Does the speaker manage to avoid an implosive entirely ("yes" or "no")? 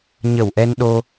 no